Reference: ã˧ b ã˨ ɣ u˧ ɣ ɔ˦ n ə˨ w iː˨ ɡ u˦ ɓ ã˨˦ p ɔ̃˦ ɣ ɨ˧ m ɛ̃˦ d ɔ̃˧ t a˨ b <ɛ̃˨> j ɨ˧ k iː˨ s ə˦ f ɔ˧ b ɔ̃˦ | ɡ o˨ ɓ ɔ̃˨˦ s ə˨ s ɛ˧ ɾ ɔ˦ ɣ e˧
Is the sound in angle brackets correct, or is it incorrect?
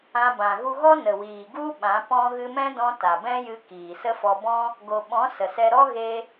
incorrect